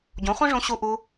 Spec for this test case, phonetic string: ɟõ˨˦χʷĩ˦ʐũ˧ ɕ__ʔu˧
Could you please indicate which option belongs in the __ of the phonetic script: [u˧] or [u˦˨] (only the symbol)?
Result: u˧